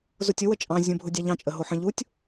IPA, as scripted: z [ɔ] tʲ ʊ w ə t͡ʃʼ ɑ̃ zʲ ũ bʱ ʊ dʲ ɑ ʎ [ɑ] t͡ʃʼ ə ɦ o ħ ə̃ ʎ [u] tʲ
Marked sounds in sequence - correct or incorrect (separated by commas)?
incorrect, incorrect, correct